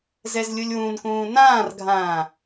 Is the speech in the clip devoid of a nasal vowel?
no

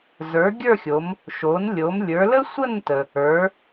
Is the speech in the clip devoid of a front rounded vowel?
yes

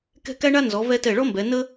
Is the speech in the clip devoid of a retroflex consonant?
no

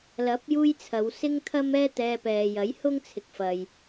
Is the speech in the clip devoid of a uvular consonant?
yes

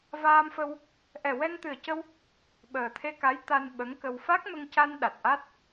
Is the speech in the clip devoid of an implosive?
no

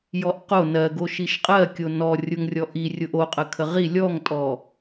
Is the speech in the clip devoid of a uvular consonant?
no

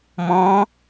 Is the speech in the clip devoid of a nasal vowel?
no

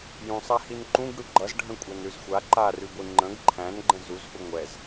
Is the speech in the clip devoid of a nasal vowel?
no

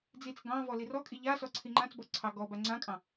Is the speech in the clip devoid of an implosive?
yes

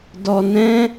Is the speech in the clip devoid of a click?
yes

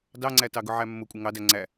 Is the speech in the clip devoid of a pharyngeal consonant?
no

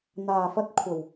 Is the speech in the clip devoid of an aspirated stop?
no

